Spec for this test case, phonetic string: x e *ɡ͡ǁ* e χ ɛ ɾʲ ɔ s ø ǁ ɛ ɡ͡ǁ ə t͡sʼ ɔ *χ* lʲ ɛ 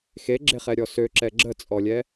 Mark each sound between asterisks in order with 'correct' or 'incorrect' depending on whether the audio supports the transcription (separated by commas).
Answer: correct, incorrect